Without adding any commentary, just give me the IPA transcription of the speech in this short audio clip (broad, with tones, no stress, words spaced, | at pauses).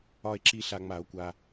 ɒ˨e̯ǁi˨ ɬa˨ŋ͡ma˨˩˦o̯kʷa˨